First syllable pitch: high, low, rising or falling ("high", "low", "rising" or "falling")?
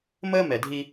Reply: high